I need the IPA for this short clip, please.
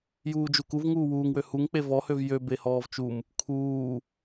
juːd͡ʒukuv ŋuːwuːŋwø huŋk͡pe vɔhøv jø behɔːvt͡ʃum | kʰuː

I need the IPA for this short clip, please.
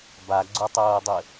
baɡ͡ǀotˤoːdˤɘ

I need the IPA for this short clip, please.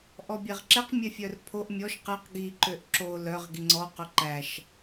ʔɔbʲɛʁǁɛq mʲɛfʲœrpʰoʔ mʲɔʃ qɛq ɡi ǃøʔǁo lœʁ ɡiŋ͡ǀɔ qɵǃæʃ

